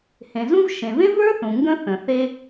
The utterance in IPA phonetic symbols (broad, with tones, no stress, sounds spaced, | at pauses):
h ẽ˩ z ũ˥ v ʃ ẽ˩ v ẽ˥ v ə˞˥ θ ũ˩ ŋ ɡ ə̃˥ θ ə̃˩ θ e˥